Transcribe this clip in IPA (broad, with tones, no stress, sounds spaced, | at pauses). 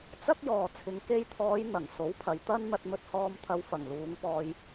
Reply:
t͡s ɐ˥ k̚ j ɔː˨ t͡sʰ ɪ˨ ŋ k e˧ j t̪ʰ ɔː˨˧ j n̪ ɐ˨˩ ŋ s o˨˥ w pʰ ɐ˨ j t̪ ɐ˥ n n̪ ɐ˧ t̚ m ɵ˧ t̚ h ɔː˧ m t̪ʰ ɐ˨˧ w f ɐ˨˩ ŋ l uː˨˧ ŋ p ɔː˧ j